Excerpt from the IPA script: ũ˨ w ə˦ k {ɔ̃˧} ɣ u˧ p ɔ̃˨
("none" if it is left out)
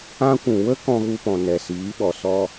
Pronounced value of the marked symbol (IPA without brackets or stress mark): ɔ̃˧